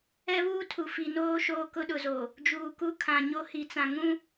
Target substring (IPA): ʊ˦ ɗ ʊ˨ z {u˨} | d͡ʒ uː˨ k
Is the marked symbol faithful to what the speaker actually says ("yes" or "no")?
no